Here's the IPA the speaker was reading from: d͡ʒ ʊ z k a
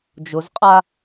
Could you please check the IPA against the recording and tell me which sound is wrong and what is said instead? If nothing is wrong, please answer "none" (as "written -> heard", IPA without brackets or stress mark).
k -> qʼ